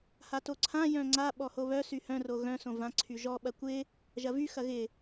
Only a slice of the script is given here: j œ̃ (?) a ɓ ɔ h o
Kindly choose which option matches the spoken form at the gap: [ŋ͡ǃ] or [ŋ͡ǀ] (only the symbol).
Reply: ŋ͡ǀ